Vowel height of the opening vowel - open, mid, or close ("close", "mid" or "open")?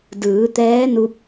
close